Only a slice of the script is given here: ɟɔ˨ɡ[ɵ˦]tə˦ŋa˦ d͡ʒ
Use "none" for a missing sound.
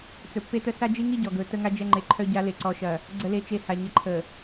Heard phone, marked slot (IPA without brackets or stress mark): ɵ˨˦